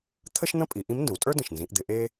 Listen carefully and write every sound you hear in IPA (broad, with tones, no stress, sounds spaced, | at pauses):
t̪ʰ ə˥ ʃ n̪ ə̃˥ pʼ i˩˧ ʔ ĩ˧˥ m n d ə̃˩˧ w tʼ ə˞˥ d ə̃˩ ʃ n z ĩ˩˧ ʔ d̪ ɪ˩˧ ʔ e˥